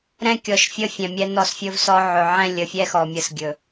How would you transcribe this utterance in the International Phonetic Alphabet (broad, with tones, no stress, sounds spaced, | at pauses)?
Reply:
ɾ ɛ̃˦ kʲ ɔ˨ ʃ fʲ ə˦ fʲ ɛ̃˨ mʲ ɛ˦ n ɔ˦˨ s fʲ ɵ˦ v s ɔ˦ ʕ ɵ˨ ʕ ɛ̃˦˨ lʲ ə˨ fʲ ɛ˦ x ɔ˨ mʲ ə˦ s ɡʲ ɵ˨